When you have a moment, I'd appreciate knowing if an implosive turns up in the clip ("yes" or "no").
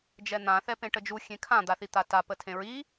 no